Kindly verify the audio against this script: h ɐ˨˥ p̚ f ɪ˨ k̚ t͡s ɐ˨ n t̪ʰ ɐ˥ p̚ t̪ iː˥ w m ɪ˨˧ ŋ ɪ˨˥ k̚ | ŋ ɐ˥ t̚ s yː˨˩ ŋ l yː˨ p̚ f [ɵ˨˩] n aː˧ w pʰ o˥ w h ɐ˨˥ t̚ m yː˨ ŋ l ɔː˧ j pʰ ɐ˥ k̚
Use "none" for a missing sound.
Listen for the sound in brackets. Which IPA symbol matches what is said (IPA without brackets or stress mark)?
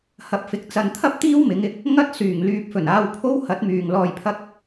ɵ˨˩